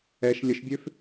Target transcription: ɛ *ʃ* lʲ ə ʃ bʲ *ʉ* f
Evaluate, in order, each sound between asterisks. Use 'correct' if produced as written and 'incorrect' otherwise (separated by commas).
correct, incorrect